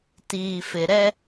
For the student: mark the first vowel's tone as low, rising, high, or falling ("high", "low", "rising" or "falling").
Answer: low